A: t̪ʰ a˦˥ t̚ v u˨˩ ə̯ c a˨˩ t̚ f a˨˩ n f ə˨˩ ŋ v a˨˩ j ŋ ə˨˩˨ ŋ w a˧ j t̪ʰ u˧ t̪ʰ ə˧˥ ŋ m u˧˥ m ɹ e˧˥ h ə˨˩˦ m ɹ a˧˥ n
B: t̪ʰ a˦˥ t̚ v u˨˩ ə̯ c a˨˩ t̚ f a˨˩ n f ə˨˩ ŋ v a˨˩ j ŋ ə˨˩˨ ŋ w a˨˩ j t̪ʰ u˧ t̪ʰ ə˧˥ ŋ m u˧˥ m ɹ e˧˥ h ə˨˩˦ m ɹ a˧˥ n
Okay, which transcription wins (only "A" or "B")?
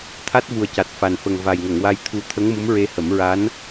A